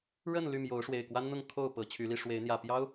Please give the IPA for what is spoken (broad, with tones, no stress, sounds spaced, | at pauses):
ɻ ə˥˨ n l y˥˨ m j o˨˦ ʊ̯ ʂ w e˨˩ ɪ̯ k w a˦ n n̪ ʊ˥˨ ŋ kʰ o˥˨ ʊ̯ p ɤ˨˦ t͡ɕʰ y˨˦ l i˧ ʂ w e˨˦ ɪ̯ n̪ j ä˨˩ p j ɑ˦ ʊ̯